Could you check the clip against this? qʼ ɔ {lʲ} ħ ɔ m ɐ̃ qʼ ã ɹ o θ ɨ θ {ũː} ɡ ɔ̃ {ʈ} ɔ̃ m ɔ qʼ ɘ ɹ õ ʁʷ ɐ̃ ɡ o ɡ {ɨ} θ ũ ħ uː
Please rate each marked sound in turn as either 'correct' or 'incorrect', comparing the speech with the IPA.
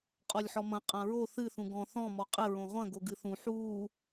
correct, incorrect: ũ, incorrect: θ, correct

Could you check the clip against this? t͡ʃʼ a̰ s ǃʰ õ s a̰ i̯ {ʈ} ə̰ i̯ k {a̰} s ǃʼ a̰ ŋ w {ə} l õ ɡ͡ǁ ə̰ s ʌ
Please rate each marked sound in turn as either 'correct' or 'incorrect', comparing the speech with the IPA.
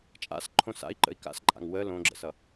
incorrect: ǃ, correct, correct

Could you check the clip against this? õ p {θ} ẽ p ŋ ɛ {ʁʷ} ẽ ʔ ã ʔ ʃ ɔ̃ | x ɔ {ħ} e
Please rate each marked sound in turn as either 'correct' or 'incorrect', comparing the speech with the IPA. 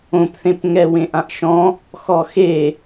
correct, incorrect: w, incorrect: x

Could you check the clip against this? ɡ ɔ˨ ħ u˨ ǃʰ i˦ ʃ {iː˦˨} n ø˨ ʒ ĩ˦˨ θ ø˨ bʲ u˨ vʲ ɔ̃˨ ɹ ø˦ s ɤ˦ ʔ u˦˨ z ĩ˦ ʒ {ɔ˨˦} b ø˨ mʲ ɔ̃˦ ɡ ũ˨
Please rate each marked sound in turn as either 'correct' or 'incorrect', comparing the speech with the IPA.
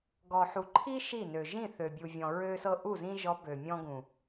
incorrect: i˦˨, correct

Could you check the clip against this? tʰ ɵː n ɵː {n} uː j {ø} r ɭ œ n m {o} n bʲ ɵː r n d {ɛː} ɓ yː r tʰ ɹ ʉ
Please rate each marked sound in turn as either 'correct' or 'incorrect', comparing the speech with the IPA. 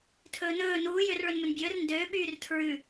correct, correct, incorrect: ɵ, incorrect: øː

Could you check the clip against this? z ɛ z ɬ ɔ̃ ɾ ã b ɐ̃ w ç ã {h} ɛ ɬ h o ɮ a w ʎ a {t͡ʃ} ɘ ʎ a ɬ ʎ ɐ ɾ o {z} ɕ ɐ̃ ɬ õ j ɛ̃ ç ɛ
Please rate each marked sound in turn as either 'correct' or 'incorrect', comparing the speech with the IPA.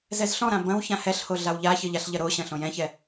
correct, incorrect: ç, incorrect: none

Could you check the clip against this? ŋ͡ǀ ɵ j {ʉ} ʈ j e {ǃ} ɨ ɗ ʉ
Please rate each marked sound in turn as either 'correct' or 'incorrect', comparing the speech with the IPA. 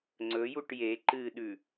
incorrect: u, correct

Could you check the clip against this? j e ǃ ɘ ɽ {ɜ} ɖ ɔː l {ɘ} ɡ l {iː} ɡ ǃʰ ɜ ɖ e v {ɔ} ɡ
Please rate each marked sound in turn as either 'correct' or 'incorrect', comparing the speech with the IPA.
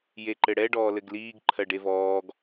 incorrect: ɛ, correct, correct, incorrect: ɔː

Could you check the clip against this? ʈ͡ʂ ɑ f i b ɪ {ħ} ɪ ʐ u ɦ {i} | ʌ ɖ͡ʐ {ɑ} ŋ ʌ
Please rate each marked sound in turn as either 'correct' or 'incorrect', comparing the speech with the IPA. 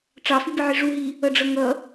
incorrect: ʕ, correct, incorrect: ʌ

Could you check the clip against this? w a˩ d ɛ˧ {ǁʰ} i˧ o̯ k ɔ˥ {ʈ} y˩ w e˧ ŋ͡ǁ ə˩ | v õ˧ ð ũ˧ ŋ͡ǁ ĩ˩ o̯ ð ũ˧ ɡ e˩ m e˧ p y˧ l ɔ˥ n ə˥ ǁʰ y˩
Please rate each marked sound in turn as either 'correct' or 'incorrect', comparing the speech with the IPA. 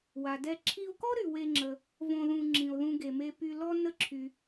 correct, incorrect: ɾ

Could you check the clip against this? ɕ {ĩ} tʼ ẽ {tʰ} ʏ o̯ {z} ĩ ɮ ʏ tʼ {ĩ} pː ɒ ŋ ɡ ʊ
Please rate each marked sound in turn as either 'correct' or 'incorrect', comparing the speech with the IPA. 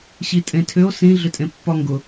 incorrect: i, correct, incorrect: s, incorrect: ẽ

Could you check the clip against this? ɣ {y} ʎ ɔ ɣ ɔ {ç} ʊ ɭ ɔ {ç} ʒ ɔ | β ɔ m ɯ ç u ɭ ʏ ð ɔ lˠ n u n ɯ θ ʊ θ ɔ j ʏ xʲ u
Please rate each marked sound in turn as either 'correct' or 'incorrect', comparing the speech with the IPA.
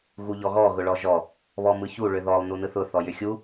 incorrect: u, incorrect: ɣ, incorrect: none

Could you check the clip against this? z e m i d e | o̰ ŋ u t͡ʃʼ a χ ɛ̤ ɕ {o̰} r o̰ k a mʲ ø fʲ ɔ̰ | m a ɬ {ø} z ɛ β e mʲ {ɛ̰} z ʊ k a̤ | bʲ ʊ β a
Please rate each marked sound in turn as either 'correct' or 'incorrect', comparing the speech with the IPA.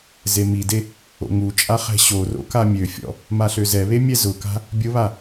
incorrect: o, correct, incorrect: ɛ

